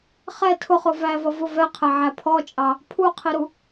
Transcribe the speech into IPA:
χ ɛ tʰ ʊ χ ʊ v æ v ʌ v ʊ v ɛ qʰ ɛ ʕ æ pʰ ɔ t͡ʃʼ ɑ | pʰ u qʰ i ɾ u

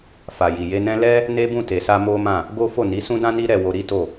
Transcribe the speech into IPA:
f a˨ j i˨ j e˧ n ɛ̃˦ l ɛ˦ | n e˦ b ũ˦˨ t e˨ s a˧ m o˦ m ã˦˨ | ɡ o˦ f o˦˨ n i˨˦ s ũ˦ d ã˦ n i˦ ɾ ɛ˧ w o˧ ɾ i˦ t o˦˨

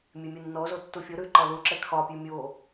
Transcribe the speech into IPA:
mʲ e mʲ u nː ɔ z o tː u fʲ o ɾ ʉ ǃ ɒ l u ǁ ɛ kʰ ɒ pʲ ʉ mʲ o

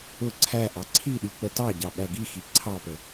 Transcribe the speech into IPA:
ʊ ǀʰ æ ʔ ɑ ǀʰ i ɗ i k͡p ə t ɑ ɟ ɑ ɓ æ ɡ i x i ǀʰ ɑ p ə

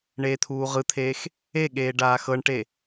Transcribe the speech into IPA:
ɳ eː t̪ʰ uː ʁ ɯ t̪ʰ eː x | e ɠ eː ɖ aː x ɤ ɳ ʈ e

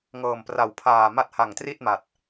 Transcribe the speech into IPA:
ŋ ɤː˨˩ m p r a˨˩ w pʰ aː˨˩ m a˦˥ t̚ h a˨˩ ŋ t r i˥˩ t̚ m a˨˩ t̚

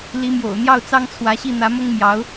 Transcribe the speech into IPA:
l i˧˥ m j o̰˨˩ ʊ̯ n̪ j ɑ˥˩ ʊ̯ t͡s ɑ˥ ŋ t͡sʰ w ä˧˥ ɕ i˥˩ n̪ ä˧˥ m ʊ˥ ŋ m j ɑ˧˥ ʊ̯

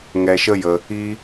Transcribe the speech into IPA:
ŋ ɛ˧ ʃ ə˦ j ə˧ | i˦

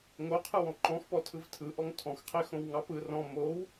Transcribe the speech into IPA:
ŋ o qʰ ɯ w ɔ̃ ǃ ɔ̃ x p ɔ tʰ ɯ v tʰ ɯ ʔ ɔ ŋ tʰ ɔ̃ x qʰ e x õ w ŋ ɑ p ɯ r ɔ̃ m o w

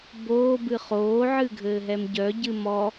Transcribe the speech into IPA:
b oː b ɨ χ oː ʕ ɨ ɡʱ ɘː ɦ ɛ m ɟ œ ɟ ɨ m ɔ

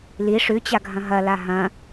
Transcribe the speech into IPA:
l i ʂ ʉ t͡ɕ a ɡʱ ɐ̃ ɦ ɐ l a ɦ ɐ̃

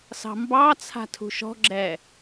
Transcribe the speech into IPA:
s ɑ̤ m b ɑ t͡sʰ a̤ tʰ ṳ ʃ ɔ̤ ɡ͡ǁ ɛ

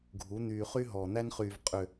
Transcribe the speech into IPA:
ɡʱ u˨˦ n̪ yː˨ χ y˦ ɦ ɔː˨ n̪ æ˦ n χ yː˨ v qʼ ʏ˨

